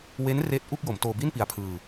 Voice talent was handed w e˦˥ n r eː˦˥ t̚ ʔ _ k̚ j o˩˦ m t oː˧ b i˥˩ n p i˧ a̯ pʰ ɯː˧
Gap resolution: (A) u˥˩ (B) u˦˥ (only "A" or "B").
A